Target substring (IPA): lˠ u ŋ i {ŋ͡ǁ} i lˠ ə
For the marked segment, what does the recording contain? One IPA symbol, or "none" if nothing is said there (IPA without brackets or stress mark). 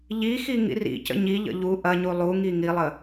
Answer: ŋ